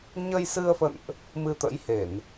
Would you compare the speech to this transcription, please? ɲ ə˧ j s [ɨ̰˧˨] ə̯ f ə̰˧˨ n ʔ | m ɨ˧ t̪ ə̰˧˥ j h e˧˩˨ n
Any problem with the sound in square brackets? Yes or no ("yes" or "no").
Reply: yes